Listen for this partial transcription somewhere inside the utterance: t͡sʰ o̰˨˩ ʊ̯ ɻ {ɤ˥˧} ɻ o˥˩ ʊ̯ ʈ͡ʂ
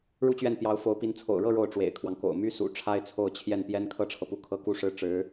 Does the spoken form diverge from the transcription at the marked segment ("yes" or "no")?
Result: no